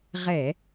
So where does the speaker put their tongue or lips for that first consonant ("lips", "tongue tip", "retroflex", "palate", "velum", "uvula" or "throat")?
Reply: uvula